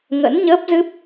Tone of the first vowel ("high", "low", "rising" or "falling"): rising